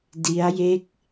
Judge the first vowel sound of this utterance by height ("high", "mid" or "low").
high